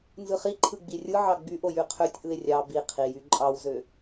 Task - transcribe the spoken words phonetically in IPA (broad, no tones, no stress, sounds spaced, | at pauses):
n z ɯ χ i ǃʰ ɯ ɡ͡b i rʲ ɯ ʕ ɑ ɡ͡b y ʔ o j y qʰ ø tʲ ʔ ɯ e̯ rʲ ɑ b i qʰ i j y ǃʼ ɑ w z ø